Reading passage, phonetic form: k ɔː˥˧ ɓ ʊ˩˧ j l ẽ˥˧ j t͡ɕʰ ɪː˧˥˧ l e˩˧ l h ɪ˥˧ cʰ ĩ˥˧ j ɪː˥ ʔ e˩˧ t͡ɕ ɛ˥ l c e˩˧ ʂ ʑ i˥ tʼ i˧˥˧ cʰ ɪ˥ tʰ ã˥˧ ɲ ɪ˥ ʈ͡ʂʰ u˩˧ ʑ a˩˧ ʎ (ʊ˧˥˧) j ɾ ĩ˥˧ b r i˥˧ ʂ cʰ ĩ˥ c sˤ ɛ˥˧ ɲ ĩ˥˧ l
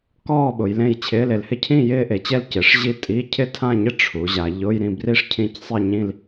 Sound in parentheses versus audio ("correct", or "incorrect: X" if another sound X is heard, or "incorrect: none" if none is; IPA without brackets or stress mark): correct